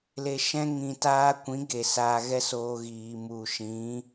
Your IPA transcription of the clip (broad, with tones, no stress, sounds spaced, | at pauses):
l e˧ ʃ ɛ̃˦ ŋ ĩ˧ t aː˦ kʷ ĩ˨˦ ɡ e˨ s aː˧ ɣ ɛ˦ s oː˧ ɣ iː˨ m u˨ ʃ ĩ˨˦